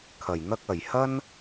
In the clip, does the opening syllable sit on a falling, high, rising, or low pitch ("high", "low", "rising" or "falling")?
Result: low